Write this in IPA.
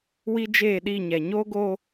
w i˦ d͡ʒ eː˦˨ ɗ i˦˨ ɲ ɛ˨ ɲ oː˦ ɡ o˦

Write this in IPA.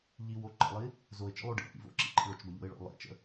ʎ i w o ǃ ə̰ lˠ i | z o ɪ̯ t͡ʃ ə̰ lˠ o ɖ ḭ ʔ ḭ v o̰ ǁ ḭ ǃ ḭ ɭ ʊ t͡ʃ b ɐ ʎ o̰ ɪ̯ ɭ o̰ lˠ ḭ t͡ʃ ə̰

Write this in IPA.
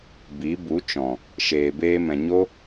b i˨˦ b u˨˦ t͡ʃ ɔ̃˨ | ʃ eː˨ b eː˧ m ɛ̃˨ ɲ o˦

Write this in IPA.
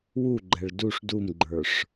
w u ɡ͡ǃ ɛ ɭ d u ʂ d u m ɡ͡ǃ ə˞ ʂ

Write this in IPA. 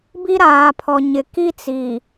b i˦ ɾ aː˨ pʰ ɔ˨ ɲ ɪ˨ k i˦ t͡s iː˨

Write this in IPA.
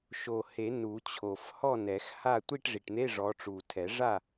ʃ o˨˩ h e˨˩˦ n u˨˩˦ t͡ɕʰ o˨˩ f h ɔ˥˨ n ɛ˨˩˦ x h a˥˨ tʷ i˥˨ ʈ ʐ i˨˩ ʈ n̪ e˧˥˧ ʐ ɔ˨˦ ʈ͡ʂ u˨˩ tʰ ɛ˨˩˦ ʐ a˥˨

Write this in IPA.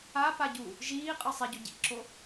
a p a ɟ u | ʒ iː qʼ ɯ sˤ i ɟ o ɟ ḭ ǁ o

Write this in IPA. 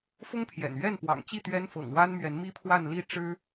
f ʊ˥ ŋ pʰ j ɛ̰˨˩ n ɥ ɛ˥˩ n p w ɑ̰˨˩ ŋ t͡ɕ i˥˩ t̪ ɥ ɛ˥ n f ɤ̰˨˩ ŋ w a˥ n m ɥ ɛ˧˥ n m i˥ pʰ w a˥˧ n l i˥˩ ʈ͡ʂ ɻ̩˥

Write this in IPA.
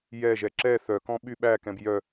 j ɛ ʒ ɛ ǁ ɛ θ œ k ɔ̃ ɓ y ɓ æ k ɛ̃ b j œ

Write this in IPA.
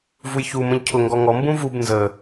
v u j ç u m ə̃ ʎ cʰ ʊ ŋ ɡ ɔ ŋ ɔ m b ũ v u b n z ə

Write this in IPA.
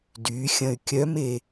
d y xʲ ɐ̃ y̯ kʲ œ m e

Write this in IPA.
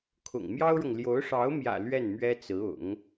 kʰ ʊ̰˨˩ ŋ m j ɑ˥ ʊ̯ ɻ ʊ˨ ŋ l j o˧˥ ʊ̯ ʂ ɑ˧˥ ʊ̯ m j ä̰˨˩ l ɥ ɛ˥˩ n m ɥ ɛ˥ t͡s ɹ̩˧˥ ʊ̰˨˩˦ ŋ

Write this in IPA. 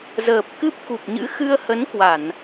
z əː˨˩ p̚ k ɨ˦˥ p̚ k u˨˩ p̚ ɲ ɨ̰˧˥ x ɨ˧ ə̯ h ə˨˦ n k w a˧˩˨ n

